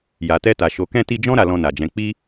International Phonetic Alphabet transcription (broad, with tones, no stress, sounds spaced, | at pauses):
j a˨ t ɛ˧ t a˨ ʃ o˨ k ɛ̃˧ t i˧ d͡ʒ ɔ̃˦ ɾ a˧ l ɔ̃˧ n a˨ d͡ʒ ɛ̃˨˦ k͡p i˦